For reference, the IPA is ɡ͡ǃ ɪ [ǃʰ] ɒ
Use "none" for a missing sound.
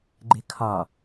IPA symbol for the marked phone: kʰ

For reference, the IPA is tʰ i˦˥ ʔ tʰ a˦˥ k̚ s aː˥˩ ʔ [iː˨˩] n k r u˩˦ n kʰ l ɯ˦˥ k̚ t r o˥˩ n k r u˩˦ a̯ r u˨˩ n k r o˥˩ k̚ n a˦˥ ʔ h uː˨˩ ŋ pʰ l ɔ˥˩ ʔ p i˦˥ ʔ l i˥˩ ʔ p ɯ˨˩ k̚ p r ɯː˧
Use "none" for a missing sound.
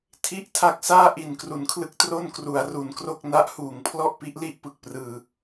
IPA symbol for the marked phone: i˨˩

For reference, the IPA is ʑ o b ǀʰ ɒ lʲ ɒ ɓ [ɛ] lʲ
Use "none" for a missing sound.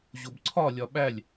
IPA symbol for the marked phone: æ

